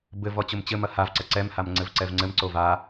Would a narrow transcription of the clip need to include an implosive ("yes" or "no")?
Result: no